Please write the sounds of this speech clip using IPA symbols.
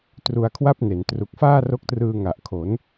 t r u˧ a̯ kʰ w a˥˩ p̚ n e˩˦ n t r u˨˩ k̚ f aː˥˩ r o˦˥ k̚ t r ɯː˧ ŋ a˨˩ ʔ kʰ o˩˦ n

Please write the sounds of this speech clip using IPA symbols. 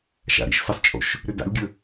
ʃ a̰ ɾ ḭ ʃ s ə sˤ t͡ʃʼ o̰ ʃ | ɾ ʏ d a̰ lʲ ɡʲ ə

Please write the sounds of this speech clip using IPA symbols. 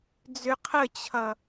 d͡z ʏ qʰ ə t͡ɕʰ ʌ

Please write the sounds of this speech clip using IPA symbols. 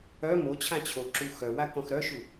œ m o t͡ɕʰ ã t͡ɕʰ o ǁ u x œ w a k ɔ̃ x ɾ œ ʃ u

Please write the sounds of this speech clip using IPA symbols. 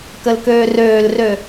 k ə l k øː r øː l r ø

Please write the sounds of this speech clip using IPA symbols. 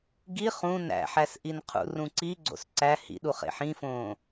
ɡ i χ ũ n æ̰ ħ æ s ʔ i n qʰ ṵ r ũ ǀ i ɡ͡ǀ o̰ s ǀ æ h ḭ ɗ u χ ḛ ħ ĩ f õː

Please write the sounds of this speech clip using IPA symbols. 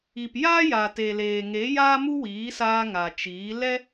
i˨ p j aː˦ j a˨ t e˨ l eː˨ ŋ e˨˦ j aː˦ m u˦ w iː˨˦ s aː˧ ŋ a˨ t͡ʃ iː˨˦ l ɛ˦

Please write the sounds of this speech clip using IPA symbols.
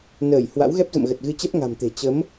n əː˧˩ j h w a̰˧˥ w ɣ ɛ˦˥ p̚ z ə̰˧˨ m ɣ ə˨˩ t̚ ɣ ɨ˧ t͡ɕ ɛ˦˥ p̚ ŋ a̤˨˩ m t̪ e̤˨˩ t͡ɕ ə˨˦ m

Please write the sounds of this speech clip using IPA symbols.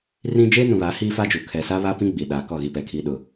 r ĩ˦ d͡ʒ eː˦ n ũ˨ β a˨˦ h iː˦ f a˦ d͡ʒ u˨ kʰ ɛ˨ s a˦ β a˦ p ĩ˦ ɡ͡b i˨ ɗ aː˨ k ɔ˦˨ ɣ i˦ p ɛ˨ kʰ iː˦ ɗ ʊ˨

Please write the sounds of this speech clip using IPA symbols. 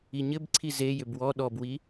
i ɲ ɘ b ǀʰ i z e j ʏ b w ɔ ɗ ɔ b w i

